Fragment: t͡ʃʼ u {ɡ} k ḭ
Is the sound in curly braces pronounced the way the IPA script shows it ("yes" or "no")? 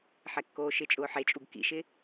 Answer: yes